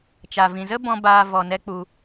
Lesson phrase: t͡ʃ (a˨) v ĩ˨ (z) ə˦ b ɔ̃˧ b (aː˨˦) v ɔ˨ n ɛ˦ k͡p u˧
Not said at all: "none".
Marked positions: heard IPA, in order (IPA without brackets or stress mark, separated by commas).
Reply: a˨, z, aː˧